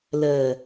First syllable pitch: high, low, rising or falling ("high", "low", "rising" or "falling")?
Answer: low